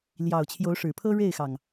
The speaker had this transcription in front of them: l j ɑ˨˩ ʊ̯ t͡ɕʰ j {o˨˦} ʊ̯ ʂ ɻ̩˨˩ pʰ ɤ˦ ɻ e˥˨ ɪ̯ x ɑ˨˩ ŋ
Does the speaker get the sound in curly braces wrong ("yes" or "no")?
no